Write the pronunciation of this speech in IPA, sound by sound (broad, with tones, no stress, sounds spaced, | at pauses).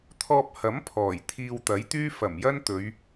t̪ʰ ɔː˧ p̚ h ɐ˨˥ m pʰ ɔː˨˩ j t̪ʰ iː˧ w t̪ ɐ˨˥ j t̪ yː˥ f ɐ˨˩ m j ɐ˥ n t̪ ɵ˨˧ ɥ